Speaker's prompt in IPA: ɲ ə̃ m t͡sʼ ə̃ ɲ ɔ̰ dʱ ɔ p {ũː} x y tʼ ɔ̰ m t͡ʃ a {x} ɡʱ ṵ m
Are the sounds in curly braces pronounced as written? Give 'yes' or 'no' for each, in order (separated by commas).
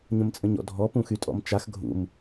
no, yes